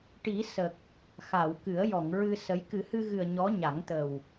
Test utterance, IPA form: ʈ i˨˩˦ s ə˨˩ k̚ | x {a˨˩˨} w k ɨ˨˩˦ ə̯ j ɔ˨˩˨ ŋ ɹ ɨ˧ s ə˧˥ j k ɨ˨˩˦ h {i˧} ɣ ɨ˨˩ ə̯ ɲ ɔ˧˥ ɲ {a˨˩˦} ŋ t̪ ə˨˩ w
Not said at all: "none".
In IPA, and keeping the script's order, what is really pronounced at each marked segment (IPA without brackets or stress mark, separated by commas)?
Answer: a˨˩˨, ɨ˧, a˨˩˦